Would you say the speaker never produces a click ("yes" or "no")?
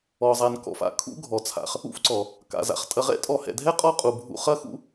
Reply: no